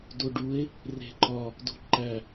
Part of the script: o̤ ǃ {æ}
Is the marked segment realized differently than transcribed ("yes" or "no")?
no